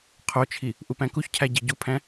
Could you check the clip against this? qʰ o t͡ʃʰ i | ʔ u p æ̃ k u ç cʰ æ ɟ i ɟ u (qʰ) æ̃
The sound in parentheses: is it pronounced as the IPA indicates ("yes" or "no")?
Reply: no